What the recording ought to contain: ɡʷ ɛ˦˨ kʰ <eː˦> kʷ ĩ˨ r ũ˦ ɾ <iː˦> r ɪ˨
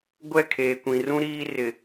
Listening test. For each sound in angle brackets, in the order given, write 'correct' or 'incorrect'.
incorrect: eː˨, correct

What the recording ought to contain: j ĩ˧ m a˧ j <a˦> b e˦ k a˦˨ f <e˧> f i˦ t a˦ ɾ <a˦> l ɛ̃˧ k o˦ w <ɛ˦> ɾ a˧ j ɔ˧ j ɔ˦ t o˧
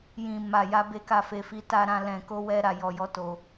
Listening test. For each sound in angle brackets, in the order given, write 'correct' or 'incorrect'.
correct, correct, incorrect: ã˦, correct

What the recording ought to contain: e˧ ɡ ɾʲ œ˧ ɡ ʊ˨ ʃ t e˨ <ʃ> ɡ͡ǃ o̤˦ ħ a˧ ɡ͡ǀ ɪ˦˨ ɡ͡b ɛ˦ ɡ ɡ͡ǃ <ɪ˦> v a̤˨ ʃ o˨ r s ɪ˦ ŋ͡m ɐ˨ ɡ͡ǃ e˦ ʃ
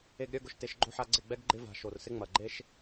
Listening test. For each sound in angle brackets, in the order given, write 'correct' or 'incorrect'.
correct, correct

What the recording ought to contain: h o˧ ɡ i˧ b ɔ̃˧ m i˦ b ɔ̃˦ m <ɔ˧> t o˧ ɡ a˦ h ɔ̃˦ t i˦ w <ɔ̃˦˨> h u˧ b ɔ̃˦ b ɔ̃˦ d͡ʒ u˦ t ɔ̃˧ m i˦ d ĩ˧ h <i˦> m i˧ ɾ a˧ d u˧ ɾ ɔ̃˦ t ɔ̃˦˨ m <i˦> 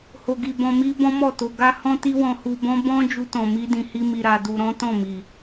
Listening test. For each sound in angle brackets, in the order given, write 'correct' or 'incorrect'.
incorrect: ɔ˦˨, incorrect: ɔ̃˧, correct, incorrect: i˨

